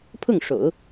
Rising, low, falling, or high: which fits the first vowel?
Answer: falling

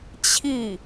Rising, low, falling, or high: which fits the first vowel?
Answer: falling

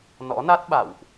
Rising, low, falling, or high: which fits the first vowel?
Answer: rising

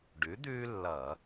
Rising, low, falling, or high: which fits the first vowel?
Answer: rising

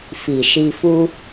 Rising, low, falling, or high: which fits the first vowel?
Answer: low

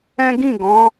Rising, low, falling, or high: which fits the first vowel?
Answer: high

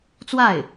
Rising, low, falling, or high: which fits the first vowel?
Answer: falling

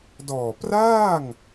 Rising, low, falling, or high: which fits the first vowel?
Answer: low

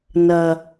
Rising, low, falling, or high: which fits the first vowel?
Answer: low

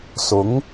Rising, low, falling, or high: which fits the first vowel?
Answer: rising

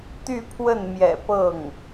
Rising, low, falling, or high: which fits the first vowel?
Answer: falling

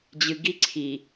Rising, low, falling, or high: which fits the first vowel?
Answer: low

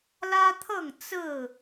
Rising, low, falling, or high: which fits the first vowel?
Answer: high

